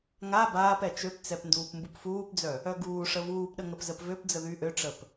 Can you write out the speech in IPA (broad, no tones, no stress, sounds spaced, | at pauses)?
ŋ a b aː p ɛ t͡ʃ ø p t͡s ɛ p n d uː p m b u p f uː p d͡z œ | œ ɡ uː ʂ ə v uː p ɗ ə ŋ ə p z ə p v ø p d͡z ə ð y ʔ ø ʈ͡ʂ ə p